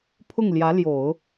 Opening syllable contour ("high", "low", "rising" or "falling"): falling